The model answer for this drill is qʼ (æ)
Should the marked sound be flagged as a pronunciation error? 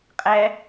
no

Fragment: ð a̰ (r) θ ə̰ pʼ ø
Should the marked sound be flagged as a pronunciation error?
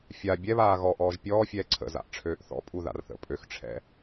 no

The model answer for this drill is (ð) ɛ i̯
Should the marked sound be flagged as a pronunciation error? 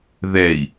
no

